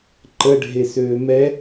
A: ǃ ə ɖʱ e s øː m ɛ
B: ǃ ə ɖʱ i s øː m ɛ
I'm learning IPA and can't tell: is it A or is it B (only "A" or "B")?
A